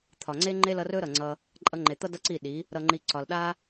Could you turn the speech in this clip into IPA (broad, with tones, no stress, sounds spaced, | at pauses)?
t̪ʰ ɒ˨ ŋ͡ǀ e˦ ŋ͡ǃ e˦ l ʌ˧ r ɵ˦ ɾ ʌ˨ ŋ͡ǀ ʌ˧ | ǃʼ ʌ˧ ŋ͡ǃ e˨ t̪ ʌ˦ d ʌ˦ ǀ i˦˨ ɗ i˨˦ | ɾ ʌ˨ ŋ͡ǃ i˨ ǀ ɒ˨ l ɗ a˦